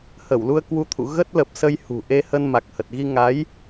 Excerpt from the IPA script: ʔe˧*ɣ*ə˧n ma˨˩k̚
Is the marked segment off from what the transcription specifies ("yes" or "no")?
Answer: yes